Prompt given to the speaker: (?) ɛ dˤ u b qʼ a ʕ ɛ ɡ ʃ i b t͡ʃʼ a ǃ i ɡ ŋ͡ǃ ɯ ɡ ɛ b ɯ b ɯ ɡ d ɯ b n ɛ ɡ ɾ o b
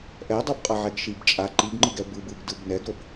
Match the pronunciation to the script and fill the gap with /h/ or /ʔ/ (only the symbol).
ʔ